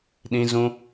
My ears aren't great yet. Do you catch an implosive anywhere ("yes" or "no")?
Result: yes